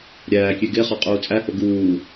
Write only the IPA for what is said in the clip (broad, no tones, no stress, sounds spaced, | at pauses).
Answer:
ɾʲ æː kʲ e ɡ e χ ɒ qʼ uː t͡sʼ æ h o ɡ uː